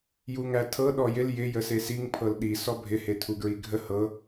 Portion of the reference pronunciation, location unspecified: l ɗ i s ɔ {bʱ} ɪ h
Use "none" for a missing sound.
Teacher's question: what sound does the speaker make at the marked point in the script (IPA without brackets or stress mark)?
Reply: bʱ